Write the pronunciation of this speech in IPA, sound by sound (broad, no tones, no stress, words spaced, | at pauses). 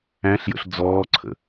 æ̃ɬjə̰ɬ d͡zɔːǀʰə̰